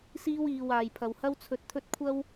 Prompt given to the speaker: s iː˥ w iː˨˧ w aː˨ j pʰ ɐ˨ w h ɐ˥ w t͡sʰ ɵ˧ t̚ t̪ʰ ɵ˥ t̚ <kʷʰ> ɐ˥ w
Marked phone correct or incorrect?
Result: correct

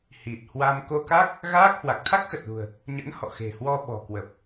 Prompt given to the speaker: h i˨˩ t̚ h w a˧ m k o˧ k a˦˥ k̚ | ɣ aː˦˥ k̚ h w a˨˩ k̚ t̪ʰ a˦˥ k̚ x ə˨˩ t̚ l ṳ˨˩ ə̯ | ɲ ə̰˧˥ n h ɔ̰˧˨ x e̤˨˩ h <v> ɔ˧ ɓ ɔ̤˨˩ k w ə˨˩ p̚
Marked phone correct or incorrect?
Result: incorrect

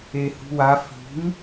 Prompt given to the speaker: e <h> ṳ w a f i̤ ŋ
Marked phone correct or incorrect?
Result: correct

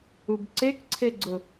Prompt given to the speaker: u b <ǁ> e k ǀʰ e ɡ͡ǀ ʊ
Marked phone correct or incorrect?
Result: incorrect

